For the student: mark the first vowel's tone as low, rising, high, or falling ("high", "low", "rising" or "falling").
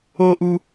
high